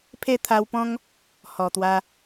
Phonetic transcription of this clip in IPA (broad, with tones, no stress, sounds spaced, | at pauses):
pʰ e˥˧ t̪ʰ a˧ w p ɔ̃˦ ŋ | h ɔ˨˩ t̪ w a˧